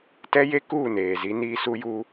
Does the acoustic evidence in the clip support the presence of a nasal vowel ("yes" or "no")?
no